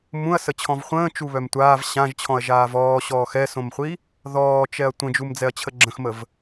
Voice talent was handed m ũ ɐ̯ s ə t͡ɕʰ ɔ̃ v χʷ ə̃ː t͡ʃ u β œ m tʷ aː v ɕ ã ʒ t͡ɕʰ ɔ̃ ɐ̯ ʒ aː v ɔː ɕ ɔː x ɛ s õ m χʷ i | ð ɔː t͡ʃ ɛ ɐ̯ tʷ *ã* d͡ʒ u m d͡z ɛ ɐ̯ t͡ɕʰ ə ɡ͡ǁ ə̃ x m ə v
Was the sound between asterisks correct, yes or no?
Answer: no